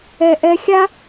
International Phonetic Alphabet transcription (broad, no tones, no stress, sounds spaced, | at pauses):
ɛ ʔ ɛ xʲ a